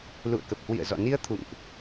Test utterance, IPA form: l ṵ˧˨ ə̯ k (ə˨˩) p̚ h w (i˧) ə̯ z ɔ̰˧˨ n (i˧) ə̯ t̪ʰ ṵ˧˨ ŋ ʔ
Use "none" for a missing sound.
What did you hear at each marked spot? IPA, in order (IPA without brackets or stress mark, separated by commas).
ə˨˩, ḭ˧˨, i˧